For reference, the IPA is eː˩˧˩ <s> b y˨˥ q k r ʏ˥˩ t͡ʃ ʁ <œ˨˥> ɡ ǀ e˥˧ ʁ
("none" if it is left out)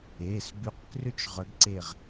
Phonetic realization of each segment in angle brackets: s, œ˨˥

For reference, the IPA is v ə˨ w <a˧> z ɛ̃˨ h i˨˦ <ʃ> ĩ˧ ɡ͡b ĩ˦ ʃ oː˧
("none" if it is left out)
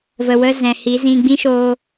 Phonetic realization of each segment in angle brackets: ə˧, z

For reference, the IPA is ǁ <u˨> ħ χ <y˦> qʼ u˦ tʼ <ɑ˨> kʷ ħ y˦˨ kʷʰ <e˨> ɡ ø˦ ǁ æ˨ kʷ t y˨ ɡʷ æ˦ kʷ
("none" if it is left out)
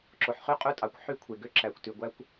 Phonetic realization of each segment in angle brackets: o˨, y˦, ɑ˨, e˨

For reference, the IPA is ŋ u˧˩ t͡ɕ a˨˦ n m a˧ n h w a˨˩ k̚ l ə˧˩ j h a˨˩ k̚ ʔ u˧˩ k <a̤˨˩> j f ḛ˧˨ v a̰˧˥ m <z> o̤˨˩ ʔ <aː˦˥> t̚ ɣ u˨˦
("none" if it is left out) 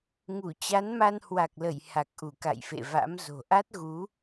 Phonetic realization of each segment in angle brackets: a̰˧˨, z, a˦˥

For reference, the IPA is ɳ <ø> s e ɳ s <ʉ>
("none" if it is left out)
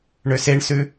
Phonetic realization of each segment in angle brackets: ø, ʉ

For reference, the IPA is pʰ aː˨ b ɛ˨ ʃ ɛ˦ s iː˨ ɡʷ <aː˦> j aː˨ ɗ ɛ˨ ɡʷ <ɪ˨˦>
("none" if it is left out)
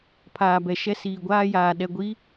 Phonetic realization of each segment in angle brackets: aː˦, i˨˦

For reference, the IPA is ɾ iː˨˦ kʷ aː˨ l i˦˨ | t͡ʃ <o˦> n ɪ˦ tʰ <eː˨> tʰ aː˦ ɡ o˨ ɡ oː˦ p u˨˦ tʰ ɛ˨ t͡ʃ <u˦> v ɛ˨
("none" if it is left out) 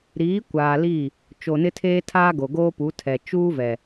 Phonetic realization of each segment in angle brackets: o˨, eː˦, uː˦

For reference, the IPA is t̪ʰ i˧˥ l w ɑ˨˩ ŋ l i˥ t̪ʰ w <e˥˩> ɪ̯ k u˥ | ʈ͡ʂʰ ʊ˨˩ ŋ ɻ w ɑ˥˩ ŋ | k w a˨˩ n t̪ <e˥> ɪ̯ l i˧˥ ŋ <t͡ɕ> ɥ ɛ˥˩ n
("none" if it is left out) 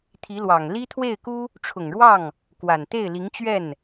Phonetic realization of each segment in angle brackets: e˥˩, e˥˩, t͡ɕ

